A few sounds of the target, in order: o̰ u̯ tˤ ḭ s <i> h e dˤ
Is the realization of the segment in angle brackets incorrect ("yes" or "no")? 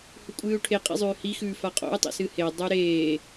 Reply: yes